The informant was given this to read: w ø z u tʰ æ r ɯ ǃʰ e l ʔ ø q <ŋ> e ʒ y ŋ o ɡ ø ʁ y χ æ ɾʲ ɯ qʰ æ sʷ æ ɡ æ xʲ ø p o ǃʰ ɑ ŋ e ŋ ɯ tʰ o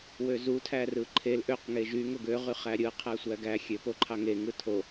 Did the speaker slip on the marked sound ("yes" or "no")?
no